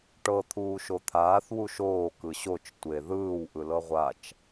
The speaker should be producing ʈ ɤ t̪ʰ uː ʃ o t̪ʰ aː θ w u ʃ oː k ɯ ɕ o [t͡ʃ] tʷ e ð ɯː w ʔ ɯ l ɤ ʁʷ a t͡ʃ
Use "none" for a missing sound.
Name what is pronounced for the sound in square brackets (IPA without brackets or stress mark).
t͡ʃ